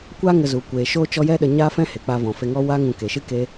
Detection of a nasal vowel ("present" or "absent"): present